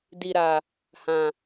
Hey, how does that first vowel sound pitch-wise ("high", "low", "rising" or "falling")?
low